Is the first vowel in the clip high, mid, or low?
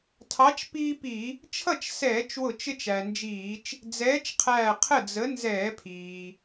low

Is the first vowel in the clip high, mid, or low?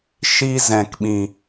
high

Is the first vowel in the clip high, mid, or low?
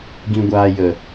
high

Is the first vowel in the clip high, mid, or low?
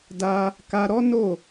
low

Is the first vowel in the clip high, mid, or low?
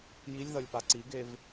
high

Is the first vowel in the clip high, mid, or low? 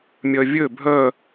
mid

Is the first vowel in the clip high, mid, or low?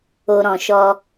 mid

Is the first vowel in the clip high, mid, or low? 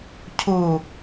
high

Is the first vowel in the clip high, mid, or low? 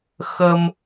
mid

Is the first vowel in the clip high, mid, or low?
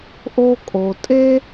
mid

